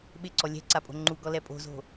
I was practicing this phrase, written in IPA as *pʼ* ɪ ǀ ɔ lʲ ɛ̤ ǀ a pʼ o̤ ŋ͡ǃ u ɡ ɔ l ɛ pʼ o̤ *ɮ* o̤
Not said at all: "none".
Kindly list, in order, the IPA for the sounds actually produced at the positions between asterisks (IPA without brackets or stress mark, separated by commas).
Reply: ɓ, z